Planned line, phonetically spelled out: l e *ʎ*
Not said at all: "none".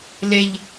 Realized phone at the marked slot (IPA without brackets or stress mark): ʎ